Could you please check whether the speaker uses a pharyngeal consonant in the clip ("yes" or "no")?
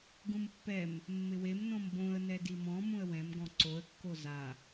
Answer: no